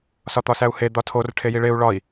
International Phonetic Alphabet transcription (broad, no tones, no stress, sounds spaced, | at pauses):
s ɒ t̪ ɒ s æ u̯ h e d̪ ɒ tʰ o r ʈʰ e j i ɭ e u̯ ɭ ɒ i̯